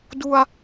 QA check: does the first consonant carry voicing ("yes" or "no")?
yes